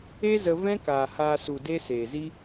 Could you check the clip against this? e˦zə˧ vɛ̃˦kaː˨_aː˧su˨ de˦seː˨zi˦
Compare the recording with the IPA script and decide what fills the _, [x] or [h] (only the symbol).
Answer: h